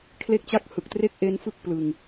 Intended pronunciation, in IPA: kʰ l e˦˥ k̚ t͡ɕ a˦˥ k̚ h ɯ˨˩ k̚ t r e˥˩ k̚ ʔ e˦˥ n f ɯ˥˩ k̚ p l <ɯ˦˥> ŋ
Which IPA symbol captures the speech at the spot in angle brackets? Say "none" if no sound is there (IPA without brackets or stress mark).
ɯ˧